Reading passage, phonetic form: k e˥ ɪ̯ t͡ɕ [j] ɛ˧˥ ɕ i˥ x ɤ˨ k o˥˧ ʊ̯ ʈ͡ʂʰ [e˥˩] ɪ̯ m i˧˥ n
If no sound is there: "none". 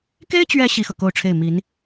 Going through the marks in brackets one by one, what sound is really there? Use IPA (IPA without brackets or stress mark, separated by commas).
ɥ, e˥˩